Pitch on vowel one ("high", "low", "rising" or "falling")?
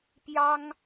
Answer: high